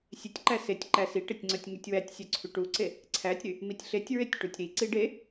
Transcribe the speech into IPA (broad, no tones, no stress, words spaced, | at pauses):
sʲetʲǃæ setʲǃæ siʈetʲ ŋ͡ǀœtʲŋytʲwætʲsʲœ ǀʰyʈuǀe | ǀʰætʲɾy | mitʲɬetʲɹetʲ ʈutʲɾiǀi ɖe